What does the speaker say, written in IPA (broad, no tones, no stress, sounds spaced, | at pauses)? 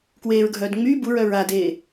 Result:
k w eː ɹ ɡʱ œː d ŋ͡m yː b u ɹ œ ɹ a d eː